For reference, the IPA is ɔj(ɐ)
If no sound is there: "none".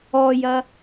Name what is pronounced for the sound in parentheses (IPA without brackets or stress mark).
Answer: ɐ